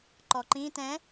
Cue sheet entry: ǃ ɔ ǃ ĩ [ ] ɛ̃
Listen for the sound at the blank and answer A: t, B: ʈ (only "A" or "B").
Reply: A